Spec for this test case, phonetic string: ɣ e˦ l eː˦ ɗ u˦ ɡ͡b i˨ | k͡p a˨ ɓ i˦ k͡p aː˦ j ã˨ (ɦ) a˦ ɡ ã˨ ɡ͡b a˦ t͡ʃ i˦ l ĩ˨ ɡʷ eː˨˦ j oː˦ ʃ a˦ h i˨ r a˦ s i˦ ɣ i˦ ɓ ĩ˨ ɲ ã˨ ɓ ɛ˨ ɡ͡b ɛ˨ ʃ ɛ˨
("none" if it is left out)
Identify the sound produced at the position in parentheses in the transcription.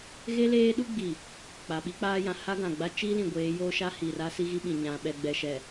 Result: h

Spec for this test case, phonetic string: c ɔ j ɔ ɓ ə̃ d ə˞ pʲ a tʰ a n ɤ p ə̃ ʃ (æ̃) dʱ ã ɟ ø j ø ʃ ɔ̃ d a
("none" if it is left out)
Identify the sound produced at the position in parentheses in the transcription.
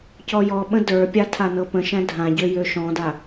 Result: æ̃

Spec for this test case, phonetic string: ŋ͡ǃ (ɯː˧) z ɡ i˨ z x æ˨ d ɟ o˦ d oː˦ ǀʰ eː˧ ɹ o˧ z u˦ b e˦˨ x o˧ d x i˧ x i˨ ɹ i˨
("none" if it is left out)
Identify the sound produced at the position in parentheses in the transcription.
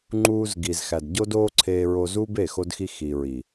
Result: uː˧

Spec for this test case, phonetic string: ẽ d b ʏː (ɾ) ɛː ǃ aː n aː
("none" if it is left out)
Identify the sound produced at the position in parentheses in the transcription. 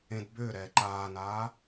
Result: ɾ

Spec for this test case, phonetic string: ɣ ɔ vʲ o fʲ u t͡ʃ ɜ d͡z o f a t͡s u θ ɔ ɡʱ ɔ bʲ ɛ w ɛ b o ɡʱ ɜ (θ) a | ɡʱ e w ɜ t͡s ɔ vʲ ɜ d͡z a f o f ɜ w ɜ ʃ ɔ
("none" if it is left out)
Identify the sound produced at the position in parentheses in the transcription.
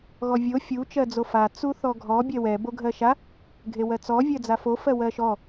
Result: ʃ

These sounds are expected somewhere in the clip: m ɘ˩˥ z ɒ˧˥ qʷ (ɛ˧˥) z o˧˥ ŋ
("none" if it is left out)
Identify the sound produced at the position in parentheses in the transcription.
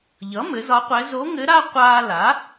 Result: ɛ˧˥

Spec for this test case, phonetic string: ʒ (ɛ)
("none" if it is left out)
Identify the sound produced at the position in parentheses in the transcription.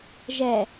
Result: ɛ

